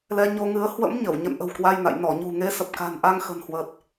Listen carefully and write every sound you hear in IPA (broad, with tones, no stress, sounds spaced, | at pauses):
l ɛ˧ ɲ o˧ ŋ ɨ˨˦ ə̯ h w ə̰˧˥ m ɲ ə˧˩ w ɲ ə̰˧˨ n ʔ ə̤˨˩ w k w a˧ j n a̰˧˨ j n ɔ˧˩ ɲ ṳ˨˩ ŋ e˨˦ s ə˨˩ p̚ k a̤˨˩ n ʔ a˧ ŋ x ə̤˨˩ n h w əː˨˩ t̚